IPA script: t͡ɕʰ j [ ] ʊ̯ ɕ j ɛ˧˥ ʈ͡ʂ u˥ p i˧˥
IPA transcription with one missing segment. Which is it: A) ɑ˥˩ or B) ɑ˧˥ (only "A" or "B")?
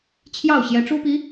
A